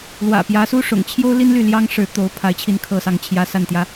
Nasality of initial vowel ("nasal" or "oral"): oral